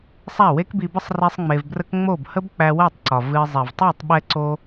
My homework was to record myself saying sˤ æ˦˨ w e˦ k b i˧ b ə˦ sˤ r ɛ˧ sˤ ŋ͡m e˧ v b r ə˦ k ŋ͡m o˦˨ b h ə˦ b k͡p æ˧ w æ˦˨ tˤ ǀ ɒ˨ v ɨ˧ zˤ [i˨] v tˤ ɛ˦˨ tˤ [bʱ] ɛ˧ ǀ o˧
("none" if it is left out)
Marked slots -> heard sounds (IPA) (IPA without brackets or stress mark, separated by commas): i˨, ɓ